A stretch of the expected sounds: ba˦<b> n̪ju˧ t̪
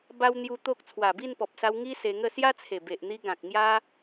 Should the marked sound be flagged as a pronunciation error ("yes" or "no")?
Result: yes